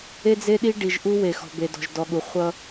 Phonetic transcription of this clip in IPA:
e˦ d͡z e˦ ɗ i˦ ɖ i˨ ʒ ʔ u˦ w e˨ x ɔ̤˨ b e˨ d ɔ̤˨ ʒ d ɔ˨ ɠ u˨ χʷ ʌ˦

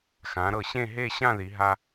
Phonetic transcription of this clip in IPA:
x ã˩˧ ɾ ɤ˧˩ ɕ ẽ˥˧ ɦ e˥˧ ɕ ã˥˧ ð i˩˧ ɦ a˧

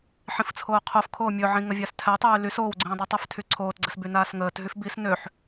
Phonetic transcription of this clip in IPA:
ħ ĩ f t͡sʰ oː qʰ o f kʰ oː mʲ ɵ ʕ ĩ ŋ ə vʲ a s tʰ ɛ tˤ yː l y s oː w ɡ͡ǀ ĩː dˤ u tˤ ɛ f tʰ y ǀʰ oː t ɡ͡ǀ ɘ s b y n aː s ŋ əː t ɦ y f b i s n ø ħ

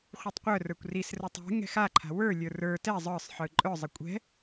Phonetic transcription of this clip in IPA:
χʷ ɯ tˤ qʷ œ r ə˞ kʷ r i s r ə˞ tˤ ɛ̤ ŋ ɛ̤ x a ǃʰ a̤ w ə˞ lʲ ə˞ r ə˞ t ɛ zˤ ə˞ sˤ ħ ɯ ǃʼ œ zˤ ɪ kʷʼ ɛ̤

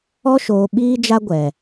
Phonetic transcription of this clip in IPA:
ɔ˦ ʃ oː˨ ɓ iː˦ d͡ʒ a˦ ɡʷ ɛ˨

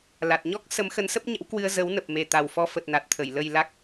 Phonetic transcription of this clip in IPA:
l a˨˩ t̚ ɲ ɔ˦˥ k̚ s ə˨˦ m x ə˨˦ n s ə˦˥ p̚ ɲ ə̰˧˥ w k w ɨ˧ ə̯ z ə˨˦ w n ə˨˩ p̚ m e˨˩ t̪ a˨˩ w f ɔ˧ f ə˨˩ t̚ n a˨˩ t̚ t̪ʰ ə˧˩ j l ə˨˩ j l a˦˥ k̚

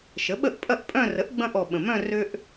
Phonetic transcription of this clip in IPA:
ʃ ə˩˥ ɓ ə˥˩ ʔ pʼ ɐ˥˧ ʔ pʼ œ̃˥˧ r ə˩˥ ʔ ɡ͡b ɐ̃˧ ʔ ɔ˨˩ ɓ ə̃˨˩ m œ̃˥˧ r ø˧ ʔ

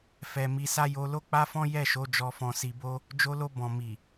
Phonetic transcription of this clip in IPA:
f ɛ˨ m i˧ s a˦ j o˧ l o˦ k͡p a˦ f ɔ̃˦ j ɛ˦˨ ʃ o˨˦ d͡ʒ ɔ˧ f ɔ̃˧ s i˧ b o˦ | d͡ʒ o˧ l o˧ b ɔ̃˨ m i˨

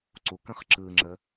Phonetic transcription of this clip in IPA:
ǀ u k ə̃ χ ǁ ɯ ŋ͡ǁ ə

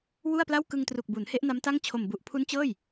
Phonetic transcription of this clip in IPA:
w u˥˩ a̯ p l a˥˩ w k ɯ˧ ŋ t r u˨˩ k̚ b u˩˦ n h e˦˥ ʔ n a˦˥ m t a˥˩ ŋ t͡ɕʰ o˨˩ m b u˨˩ ʔ pʰ u˦˥ n t͡ɕ ɤː˥˩ j

